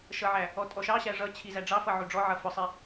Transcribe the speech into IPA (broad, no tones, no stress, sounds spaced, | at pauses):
ʃ ʌ ʕ æ | ɔ tʼ ɔ ʃ ɑ ɕ æ ʐ ʌ t͡ɕʰ i z æ ɖ͡ʐ ɑ f ʌ ʕ u ɖ͡ʐ ɔ ʕ ʌ f ʊ sˤ i